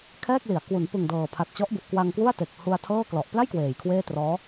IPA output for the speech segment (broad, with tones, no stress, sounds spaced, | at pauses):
kʰ ɛː˥˩ k̚ l i˩˦ a̯ k w u˩˦ n p ɯ˨˩ ŋ d ɤː˨˩ pʰ a˨˩ t̚ t͡ɕ ɔ˦˥ ʔ b u˨˩ ʔ k w a˧ ŋ k w u˥˩ a̯ t e˨˩ k̚ h u˧ a̯ tʰ ɤː˥˩ k l ɔ˨˩ ʔ p l a˥˩ j k w eː˨˩ j kʰ w eː˥˩ t r ɔː˦˥